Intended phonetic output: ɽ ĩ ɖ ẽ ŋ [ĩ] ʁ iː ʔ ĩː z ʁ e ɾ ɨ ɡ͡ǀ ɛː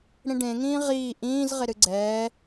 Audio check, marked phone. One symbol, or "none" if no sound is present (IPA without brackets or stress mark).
ĩː